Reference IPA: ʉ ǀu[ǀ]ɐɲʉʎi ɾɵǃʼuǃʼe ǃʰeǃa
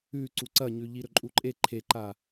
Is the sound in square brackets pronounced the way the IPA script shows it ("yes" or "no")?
yes